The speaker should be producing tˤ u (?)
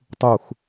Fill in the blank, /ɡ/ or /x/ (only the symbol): x